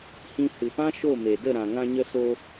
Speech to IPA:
h ĩ˧ h ɨ˨ p ã˦ ʃ o˦˨ m e˨ d ə˦˨ ɾ ã˨ ŋ ã˧ ɲ ə˧ s o˧

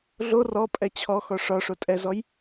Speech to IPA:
ɮ o r ɔ pʼ ɛ t͡ɕʰ ɔ x ɔ ʂ ɒ ʂ o tʼ ɛ z ɔ j

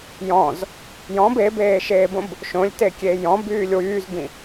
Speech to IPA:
j ɔ̃ z | j ɔ̃ b e b eː ʃ eː b õ b | ʃ õ lʲ t e kʲ e j ɔ̃ b yː lʲ w yː z b ĩ

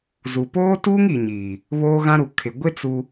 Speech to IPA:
z u˨ p oː˦ t uː˦ ŋ i˨ ɲ iː˨ | β oː˦ ɣ ã˦ ɾ u˨ kʰ ɪ˨ ɡʷ ɪ˦ t͡s u˦

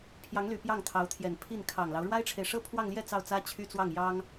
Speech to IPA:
pʰ j ɑ˧˥ ŋ l y˨˩ p j ɑ˥˩ ŋ t̪ʰ ɑ˧˥ ʊ̯ t̪ʰ j ɛ˨˩ n pʰ i˥˩ n kʰ ɑ˨˩ ŋ l ɑ˦ ʊ̯ ɻ w a˥ ɪ̯ ʈ͡ʂʰ e˨ ɪ̯ ʂ ɤ˥ pʰ w ɑ˥˧ ŋ l j ɛ˥˧ t͡s ɑ˥˩ ʊ̯ t͡s ä˥ t͡ɕʰ y˥ t͡s w ɑ˥˩ ŋ j ɑ˥ ŋ

